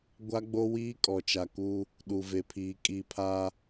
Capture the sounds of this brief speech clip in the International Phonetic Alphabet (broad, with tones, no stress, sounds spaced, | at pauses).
ɡʷ a˦ ɡ͡b o˦ w iː˦ kʼ ɔ˨ t͡ʃ a˨ k uː˦ | ɗ u˨ v e˨ pʰ iː˨ kʼ i˦˨ pʰ aː˦